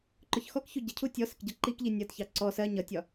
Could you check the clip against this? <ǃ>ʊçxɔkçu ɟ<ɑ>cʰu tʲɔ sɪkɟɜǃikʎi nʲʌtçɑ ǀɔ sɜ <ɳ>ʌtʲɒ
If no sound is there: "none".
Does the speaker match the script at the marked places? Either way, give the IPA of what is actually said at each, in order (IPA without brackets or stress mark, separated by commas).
ǃ, ə, ɲ